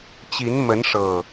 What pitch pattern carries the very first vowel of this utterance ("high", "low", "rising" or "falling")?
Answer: rising